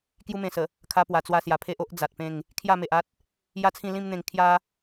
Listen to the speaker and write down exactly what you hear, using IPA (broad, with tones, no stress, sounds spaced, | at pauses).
k j u˧ m ẽ˨˩ s ə˨˩ | kʰ a˧ p w a˨˩ t͡s w a˧ s j a˨˩ pʰ e˦ ʔ o˦ ʔ d͡z a˨ t̚ p ẽ˥˧ ŋ | kʰ j a˥˧ m e˨ ʔ a˦ t̚ | j a˦ t͡sʰ ĩ˥˧ l ĩ˦ m n̪ ẽ˧ ŋ kʰ j a˦